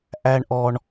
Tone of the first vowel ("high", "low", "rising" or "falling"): high